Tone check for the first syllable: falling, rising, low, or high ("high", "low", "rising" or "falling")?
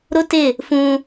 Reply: high